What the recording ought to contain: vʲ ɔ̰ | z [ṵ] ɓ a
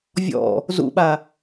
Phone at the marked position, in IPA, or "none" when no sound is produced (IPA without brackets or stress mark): ṵ